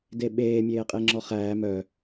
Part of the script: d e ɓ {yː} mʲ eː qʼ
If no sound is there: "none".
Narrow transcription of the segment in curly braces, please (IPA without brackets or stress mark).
eː